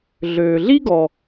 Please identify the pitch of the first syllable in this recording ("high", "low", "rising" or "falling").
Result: low